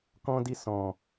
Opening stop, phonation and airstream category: plain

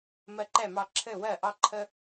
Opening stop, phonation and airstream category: click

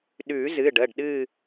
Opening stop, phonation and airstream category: implosive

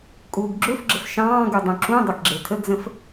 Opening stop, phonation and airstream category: ejective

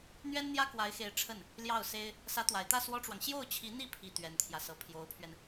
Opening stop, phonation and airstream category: plain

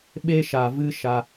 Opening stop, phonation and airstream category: implosive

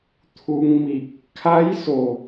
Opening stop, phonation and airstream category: aspirated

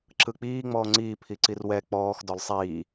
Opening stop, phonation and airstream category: click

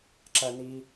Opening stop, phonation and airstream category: click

